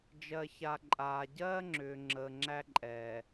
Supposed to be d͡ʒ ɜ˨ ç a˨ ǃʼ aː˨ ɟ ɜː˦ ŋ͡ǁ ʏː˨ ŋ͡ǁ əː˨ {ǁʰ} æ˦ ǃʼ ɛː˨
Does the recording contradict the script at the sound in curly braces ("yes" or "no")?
yes